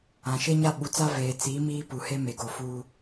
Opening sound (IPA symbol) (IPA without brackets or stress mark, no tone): ã